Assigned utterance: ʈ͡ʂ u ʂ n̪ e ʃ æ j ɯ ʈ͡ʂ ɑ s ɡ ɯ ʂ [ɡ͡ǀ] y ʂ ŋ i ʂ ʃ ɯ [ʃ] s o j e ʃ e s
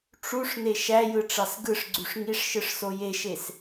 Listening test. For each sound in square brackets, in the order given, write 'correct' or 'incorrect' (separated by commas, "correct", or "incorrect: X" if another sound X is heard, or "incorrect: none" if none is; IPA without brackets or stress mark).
correct, incorrect: ʂ